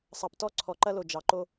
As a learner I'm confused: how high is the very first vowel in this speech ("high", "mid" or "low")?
low